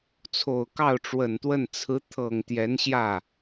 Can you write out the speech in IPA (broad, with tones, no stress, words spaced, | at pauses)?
t͡sʰo˨˩ʊ̯kɑ˥˩ʊ̯ʈ͡ʂwə˨˩nt̪wə˥˩n t͡sʰɹ̩˧˥ t̪ʰɤ˨˩ŋ t̪jɛ˧˥nɕjä˥˩